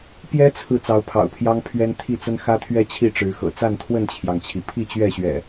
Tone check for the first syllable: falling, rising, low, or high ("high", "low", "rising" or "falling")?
high